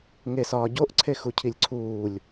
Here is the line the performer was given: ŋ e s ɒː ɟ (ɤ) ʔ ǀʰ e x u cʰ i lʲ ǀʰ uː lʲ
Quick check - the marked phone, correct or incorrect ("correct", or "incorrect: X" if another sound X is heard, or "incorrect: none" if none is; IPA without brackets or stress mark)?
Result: incorrect: o